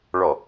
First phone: ɭ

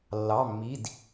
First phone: lː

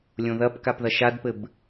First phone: lʲ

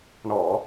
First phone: ɳ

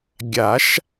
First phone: ɡʲ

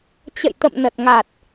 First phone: t͡ɕ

